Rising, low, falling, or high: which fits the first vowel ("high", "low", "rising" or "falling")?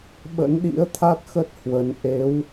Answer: rising